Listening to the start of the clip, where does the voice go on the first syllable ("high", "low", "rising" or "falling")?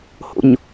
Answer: low